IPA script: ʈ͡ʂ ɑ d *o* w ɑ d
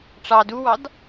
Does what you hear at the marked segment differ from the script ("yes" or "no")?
yes